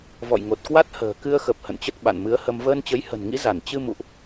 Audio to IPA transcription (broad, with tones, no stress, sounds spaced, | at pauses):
v ɔ̰˧˨ j ŋ o˨˩ t̚ k w a˦˥ t̚ h ə̤ː˨˩ k ɨ˧ ə̯ x ə˨˩ p̚ h ə̰˧˨ n t͡ɕ ə˦˥ t̚ ɓ a̰˧˨ n m ɨ˨˦ ə̯ h ə˧ m v əː˧ n t͡ɕ ə˨˦ j h ə̤˨˩ n ŋ ḭ˧˥ z a˧˩ n t͡ɕ ɨ˧ m ṵ˧˨ ʔ